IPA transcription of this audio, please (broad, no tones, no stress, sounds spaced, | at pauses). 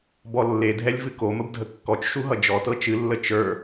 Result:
b ɔ lː e dʱ ɛ lʲ v ɨ k o m ə b dʱ ə kː ɔ t͡ʃ ʃ u ɦ ʌ d͡ʒ ɔ t ɤ t͡ʃ ɨ lː ə t͡ʃ ə˞